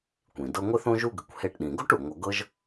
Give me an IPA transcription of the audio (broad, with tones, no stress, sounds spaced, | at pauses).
kʷ ĩ˩ d ɤ˦ ŋʷ ɪ˥ θ õ˥ ʒ u˥ ɡ ɪ˨ kʷ h e˦ ʈ ɗ ĩ˨ ɡ o˥ ʈ u˩ ŋʷ ʌ˨ ɡ ɤ˥ ʒ